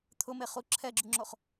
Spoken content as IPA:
t̪ʰ ʊ m e χ u ǁʰ ɛ ɡ͡ǁ u ŋ͡ǁ o χ

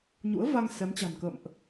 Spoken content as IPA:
ɲ ṵ˧˥ ə̯ v a˧ ŋ s ɛ˨˦ m t͡ɕ a̤˨˩ n k ə̰ː˧˨ m ʔ

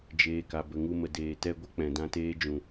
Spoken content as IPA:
d͡ʒ eː˨ k a˨ b ə˨ ŋ u˧ m ə˨ d eː˨ t ɛ˧ ɡʷ ə˦ k͡p ɛ̃˨ d ã˧ t eː˦ d͡ʒ ũ˨

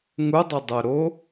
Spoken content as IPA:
ŋ u dˤ œ dˤ œ ɾ o

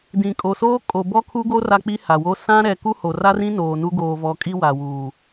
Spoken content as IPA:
d ĩ˨ kʼ o˨ s oː˦ kʼ o˨ b ɔ˦ kʰ u˦ ɡ o˦ r a˦ k͡p i˦ h a˨ w o˦ s ã˦ ɾ ɛ˨ k u˦ h o˨ r a˦ r ĩ˦ n oː˨ n u˦ ɡ oː˨ v ɔ˨ kʼ i˦ w a˨ w uː˨

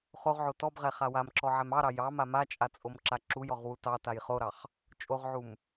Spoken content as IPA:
χ o ʁ ʕ o t ɔ b ʁ ɛ χ a w a m ǁ ɔ ʕ ɛ m ɑ ɾ ɑ j ɑ m a m a t͡ʃʼ a t͡sʼ o m ǁ a ǁ u j ɔ ʁ w u t ɑ t a j χ o ɾ ɑ χ | t͡ʃʼ o ʁ ʕ u m

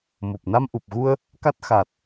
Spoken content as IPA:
m o˨˩ p̚ n a˧ m ʔ u˨˩ p̚ ɣ u˧ ə̯ | k a˦˥ t̚ x a˨˩ t̚

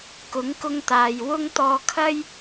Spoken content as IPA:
k ʊ˨˥ ŋ k ʊ˧ ŋ t̪ aː˨ j w ʊ˧ ŋ t̪ ɔː˧ kʰ ɐ˥ j

